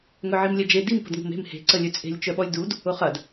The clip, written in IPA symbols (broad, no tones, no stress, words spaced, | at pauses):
ŋœʕimlʲɛd͡ʒe dim pə̤dŋo̤me̤m he̤ ǀəlʲøt͡sʼe̤lʲ t͡ʃœɓɔlʲdud | ʊχɐd